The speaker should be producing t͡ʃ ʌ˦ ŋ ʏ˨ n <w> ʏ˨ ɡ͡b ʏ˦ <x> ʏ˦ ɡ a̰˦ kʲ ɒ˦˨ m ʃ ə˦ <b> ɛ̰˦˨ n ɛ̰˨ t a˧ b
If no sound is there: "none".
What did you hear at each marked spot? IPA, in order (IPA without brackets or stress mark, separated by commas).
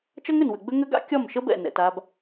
w, ŋ, b